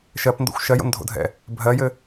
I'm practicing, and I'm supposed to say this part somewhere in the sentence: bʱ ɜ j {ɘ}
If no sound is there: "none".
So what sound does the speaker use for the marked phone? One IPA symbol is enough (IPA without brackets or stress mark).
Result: ɘ